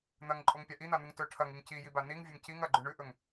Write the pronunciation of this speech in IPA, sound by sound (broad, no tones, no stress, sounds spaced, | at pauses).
n̪ ɐ ŋ ǃʼ o ŋ pʲ a ʔ i n̪ a n̪ u ŋ t ɵ ʈʰ ɐ ŋ i ŋ c i j i b a n i ŋ vʲ ɵ ŋ c i ŋ ɐ ɡ͡ǃ ʉ ɳ ʉ ʔ ɵ ŋ